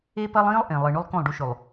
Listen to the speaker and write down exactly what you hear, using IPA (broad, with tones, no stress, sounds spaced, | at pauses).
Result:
e˦ p ɐ˦ lˠ ĩː˦ lˠ ʔ ẽ˨ lˠ ɨ˨ ɳ ʉ˦ lˠ k õ˦˨ lˠ ɖ u˦ ʃ ʉ˨ lˠ